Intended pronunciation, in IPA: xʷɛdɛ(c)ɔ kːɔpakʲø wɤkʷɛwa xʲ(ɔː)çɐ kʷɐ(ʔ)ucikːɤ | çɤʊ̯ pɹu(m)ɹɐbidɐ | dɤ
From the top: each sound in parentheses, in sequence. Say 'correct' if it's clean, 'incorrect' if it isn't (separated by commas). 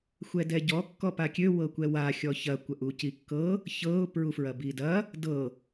incorrect, incorrect, correct, incorrect